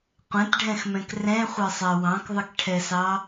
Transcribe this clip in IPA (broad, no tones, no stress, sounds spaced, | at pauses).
qʷ ɛ̃ t ɖʱ ɛ̃ x m ɛ̃ k r ɛ̃ χʷ ɛ sˤ ɛ w ɑ̃ k ðˤ ɪ k ʈʰ ɛ s ɑ